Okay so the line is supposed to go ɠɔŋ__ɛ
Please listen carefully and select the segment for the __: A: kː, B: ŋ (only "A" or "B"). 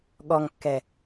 A